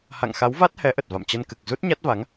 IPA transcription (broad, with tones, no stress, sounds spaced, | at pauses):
h a̰˧˨ ŋ x a˨˦ w v a˦˥ t̚ h ɛ˨˦ ʔ ə˨˩ t̚ v a̰˧˨ m t͡ɕ ə˧ n k ɨ˨˩ k̚ z u˦˥ t̚ ɲ a˦˥ t̚ v a˨˦ ŋ